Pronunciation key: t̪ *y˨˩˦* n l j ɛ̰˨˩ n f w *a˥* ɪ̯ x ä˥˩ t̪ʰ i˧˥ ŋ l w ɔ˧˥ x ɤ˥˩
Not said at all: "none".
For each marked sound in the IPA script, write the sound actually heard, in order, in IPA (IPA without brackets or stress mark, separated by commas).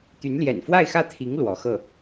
y˧˥, a˥˧